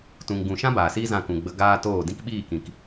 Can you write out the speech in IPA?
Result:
t ũ˨ ŋ ɡ ũ˨ ʃ ã˦ b aː˨ s iː˦ z ã˧ k ũ˨ ɡ͡b ə˧ ɡ aː˦ t oː˦˨ d ĩ˦ k ɓ iː˦˨ k ĩ˨ k

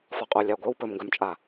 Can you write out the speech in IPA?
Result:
f ɒ qʼ o lʲ a ɡʷ œ w p ɵ m ŋ ɡ œ m t͡ʃʼ a

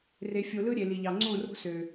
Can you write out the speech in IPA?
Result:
r e˨ fʲ o˨ l ɯ˦ ɾʲ e˨ l i˨ ʎ ɑ˨ ŋ͡ǀ õ˦˨ r o̤˦ s ø˨

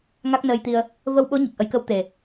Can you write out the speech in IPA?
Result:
ŋ a˦˥ k̚ n əː˧ j t̪ i˧ ə̯ | v ə˧ w ɓ o˧˥ ɲ i˨˩ k̚ ʔ ə˨˩˦ j k ə˧˥ w t̪ e˨˩

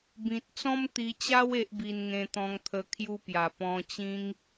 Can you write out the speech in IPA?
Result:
b ĩ˨ t̚ t͡s ɔ̃˦ m t̪ i˧ t͡ɕ a˦ w e˦ ʔ b i˧ n ŋ ẽ˧ t̪ ɔ̃˧ ŋ t̪ʰ ə˧ kʰ j u˧ p j a˨˩ p ɔ̃˧ t͡ɕ ĩ˦ ŋ

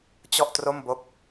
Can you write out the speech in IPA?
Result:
t͡ɕ ɔ˥˩ ʔ t r o˥˩ m b o˦˥ k̚

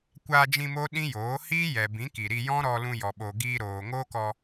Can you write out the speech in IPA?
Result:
kʷ aː˧ d͡ʒ ĩ˧ m o˦ ɗ ĩ˦ j oː˨˦ h iː˦ j ɛ˨ b ĩ˨˦ k i˨ ɾ i˧ j ɔ̃˦ ɾ ɔ˧ l ũ˧ j ɔ˨ ɓ o˨ ɡ iː˧ ɾ oː˨ ŋ oː˦ k ɔ˧

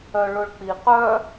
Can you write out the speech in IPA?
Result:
œ ɭ ʊ ɭ k͡p i q œ

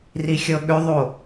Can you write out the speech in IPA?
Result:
r i xʲ ɤ ɠ ʏ ðˤ o

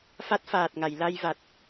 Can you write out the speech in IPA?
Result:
f a˦˥ t̚ f aː˨˩ t̚ ŋ a˨˩˨ j l a˧ j v a˨˩ t̚

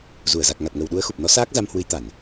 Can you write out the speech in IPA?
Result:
z u˧˩ ə̯ z a˨˩ k̚ ŋ a˨˩ t̚ ŋ ə˨˩ w ɗ u˨˦ ə̯ x u˨˩ p̚ n ɔ˨˦ s aː˦˥ k̚ z a˧ m h w ɨ˨˦ j t̪ a˧˩˨ n

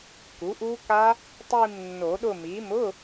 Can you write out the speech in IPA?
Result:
k u˩˥ ʔ u˦˥ k a˦˥ | tˤ i˦˨ m nː o˨˩˦ ɗ ʊ˦˨ m i˩˥ m ʊ˧˥˧

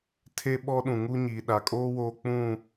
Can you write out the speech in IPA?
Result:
tʰ e˦ ɓ ɔ˦ ɗ ũ˨ ŋ u˦ ɲ iː˨ ɗ a˨ kʼ oː˦ w oː˦ k͡p ũ˦˨

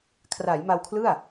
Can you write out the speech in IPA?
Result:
kʰ r a˩˦ j m a˧ w kʰ l ɯ˥˩ a̯

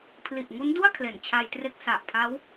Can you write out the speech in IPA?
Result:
pʰ l i˨˩ ʔ ŋ u˦˥ n d u˥˩ a̯ kʰ l e˨˩ n t͡ɕʰ a˧ j t r e˦˥ k̚ s a˨˩ ʔ pʰ a˦˥ w

